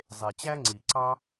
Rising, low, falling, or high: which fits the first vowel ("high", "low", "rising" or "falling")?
low